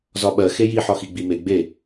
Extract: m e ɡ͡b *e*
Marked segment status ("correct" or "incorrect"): correct